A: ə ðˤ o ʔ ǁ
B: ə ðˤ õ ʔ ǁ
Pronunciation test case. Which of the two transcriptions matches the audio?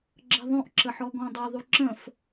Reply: B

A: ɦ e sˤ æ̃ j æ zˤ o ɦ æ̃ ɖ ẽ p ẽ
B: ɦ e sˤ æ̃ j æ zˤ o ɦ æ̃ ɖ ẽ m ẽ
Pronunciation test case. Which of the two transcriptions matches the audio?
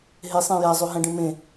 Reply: B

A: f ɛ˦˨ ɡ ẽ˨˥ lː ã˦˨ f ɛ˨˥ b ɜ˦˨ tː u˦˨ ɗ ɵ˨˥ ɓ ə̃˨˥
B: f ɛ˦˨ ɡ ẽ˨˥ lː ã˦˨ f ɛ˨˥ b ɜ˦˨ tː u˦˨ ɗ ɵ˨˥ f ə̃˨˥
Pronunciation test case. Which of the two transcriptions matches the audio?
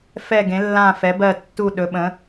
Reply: A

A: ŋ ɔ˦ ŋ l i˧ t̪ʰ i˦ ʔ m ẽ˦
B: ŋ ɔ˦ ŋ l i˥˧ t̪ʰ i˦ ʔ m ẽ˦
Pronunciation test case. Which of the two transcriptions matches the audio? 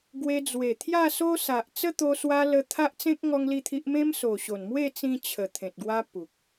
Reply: B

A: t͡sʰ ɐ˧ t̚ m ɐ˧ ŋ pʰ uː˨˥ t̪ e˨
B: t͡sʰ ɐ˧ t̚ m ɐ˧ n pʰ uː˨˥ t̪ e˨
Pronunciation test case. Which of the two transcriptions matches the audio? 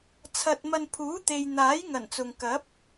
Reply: B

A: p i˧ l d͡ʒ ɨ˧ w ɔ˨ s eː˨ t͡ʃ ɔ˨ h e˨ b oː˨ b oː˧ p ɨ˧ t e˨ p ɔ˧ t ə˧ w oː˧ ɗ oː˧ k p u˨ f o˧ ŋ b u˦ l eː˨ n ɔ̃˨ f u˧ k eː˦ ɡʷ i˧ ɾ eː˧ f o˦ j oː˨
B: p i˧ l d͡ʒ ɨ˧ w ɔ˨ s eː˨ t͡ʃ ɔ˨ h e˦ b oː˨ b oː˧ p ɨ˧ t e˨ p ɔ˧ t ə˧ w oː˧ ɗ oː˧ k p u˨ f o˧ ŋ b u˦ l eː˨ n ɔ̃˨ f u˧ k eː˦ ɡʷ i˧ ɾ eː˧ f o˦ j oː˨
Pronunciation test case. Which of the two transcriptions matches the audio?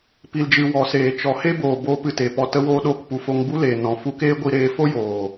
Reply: B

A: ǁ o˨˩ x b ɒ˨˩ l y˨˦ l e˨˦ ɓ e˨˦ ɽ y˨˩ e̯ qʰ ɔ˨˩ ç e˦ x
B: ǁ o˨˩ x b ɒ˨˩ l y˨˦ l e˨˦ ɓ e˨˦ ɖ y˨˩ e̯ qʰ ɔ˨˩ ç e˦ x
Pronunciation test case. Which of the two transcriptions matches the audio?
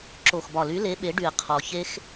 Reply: B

